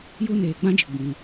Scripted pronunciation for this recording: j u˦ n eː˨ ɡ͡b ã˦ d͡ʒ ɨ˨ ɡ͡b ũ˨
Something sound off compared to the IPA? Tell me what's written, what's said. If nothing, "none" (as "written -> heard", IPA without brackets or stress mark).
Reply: none